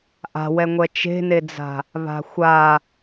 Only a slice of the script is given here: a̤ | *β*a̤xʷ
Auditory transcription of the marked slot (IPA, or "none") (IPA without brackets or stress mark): β